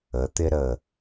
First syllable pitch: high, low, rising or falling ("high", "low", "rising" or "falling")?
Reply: rising